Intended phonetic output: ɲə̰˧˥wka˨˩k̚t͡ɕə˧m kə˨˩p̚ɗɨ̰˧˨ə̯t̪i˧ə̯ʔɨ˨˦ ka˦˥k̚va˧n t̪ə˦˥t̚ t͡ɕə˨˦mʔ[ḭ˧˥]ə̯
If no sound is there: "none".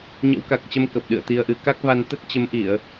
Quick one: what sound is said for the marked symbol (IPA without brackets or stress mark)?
i˧˩˨